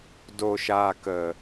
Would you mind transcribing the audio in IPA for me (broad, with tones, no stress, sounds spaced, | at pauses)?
d o˨ ʃ aː˨ k ə˨